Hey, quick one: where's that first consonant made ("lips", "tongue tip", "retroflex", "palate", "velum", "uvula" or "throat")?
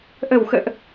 throat